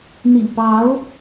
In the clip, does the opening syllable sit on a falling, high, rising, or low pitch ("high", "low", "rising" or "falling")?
low